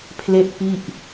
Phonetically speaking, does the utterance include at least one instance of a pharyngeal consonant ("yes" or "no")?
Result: no